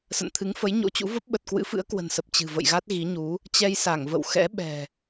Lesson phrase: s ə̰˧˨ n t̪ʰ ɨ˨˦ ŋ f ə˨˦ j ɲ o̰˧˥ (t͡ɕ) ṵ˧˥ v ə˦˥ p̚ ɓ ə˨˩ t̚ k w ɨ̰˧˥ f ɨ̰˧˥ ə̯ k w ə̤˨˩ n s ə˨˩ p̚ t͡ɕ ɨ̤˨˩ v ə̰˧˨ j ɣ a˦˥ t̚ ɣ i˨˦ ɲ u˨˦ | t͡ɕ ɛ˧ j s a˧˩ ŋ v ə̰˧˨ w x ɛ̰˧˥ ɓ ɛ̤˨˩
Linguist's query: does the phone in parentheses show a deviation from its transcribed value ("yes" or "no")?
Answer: no